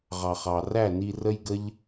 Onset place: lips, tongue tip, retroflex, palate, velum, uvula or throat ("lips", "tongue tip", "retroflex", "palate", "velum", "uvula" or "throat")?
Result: uvula